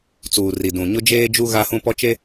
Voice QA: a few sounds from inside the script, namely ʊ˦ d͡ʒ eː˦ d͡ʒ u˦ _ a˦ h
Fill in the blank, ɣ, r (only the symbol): ɣ